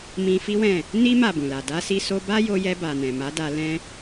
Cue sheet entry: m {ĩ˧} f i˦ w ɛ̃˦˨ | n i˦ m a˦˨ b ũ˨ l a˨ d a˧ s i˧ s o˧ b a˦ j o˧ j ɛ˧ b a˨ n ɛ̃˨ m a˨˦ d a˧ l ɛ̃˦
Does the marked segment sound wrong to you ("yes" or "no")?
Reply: no